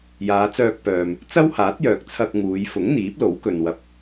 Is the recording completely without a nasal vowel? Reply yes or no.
yes